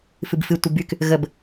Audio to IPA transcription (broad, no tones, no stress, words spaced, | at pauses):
fɨbfɨ tʷɨbyk | ɣəb